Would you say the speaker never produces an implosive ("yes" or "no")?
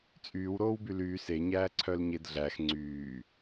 yes